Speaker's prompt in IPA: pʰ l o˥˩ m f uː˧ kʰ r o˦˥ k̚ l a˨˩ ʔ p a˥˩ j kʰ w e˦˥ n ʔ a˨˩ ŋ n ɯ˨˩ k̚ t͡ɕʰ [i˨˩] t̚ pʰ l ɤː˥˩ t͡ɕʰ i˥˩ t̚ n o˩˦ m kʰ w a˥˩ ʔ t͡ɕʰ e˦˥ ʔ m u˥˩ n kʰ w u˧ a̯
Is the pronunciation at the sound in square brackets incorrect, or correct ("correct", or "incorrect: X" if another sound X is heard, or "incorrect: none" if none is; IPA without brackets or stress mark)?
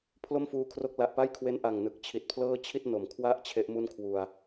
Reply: correct